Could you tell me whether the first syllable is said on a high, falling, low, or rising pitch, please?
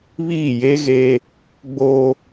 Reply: falling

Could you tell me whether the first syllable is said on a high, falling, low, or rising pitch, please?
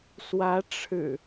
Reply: rising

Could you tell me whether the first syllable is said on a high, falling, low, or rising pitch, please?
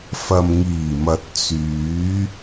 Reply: low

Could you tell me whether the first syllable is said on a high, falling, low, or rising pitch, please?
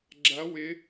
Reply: rising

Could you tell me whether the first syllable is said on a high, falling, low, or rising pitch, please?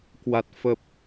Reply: low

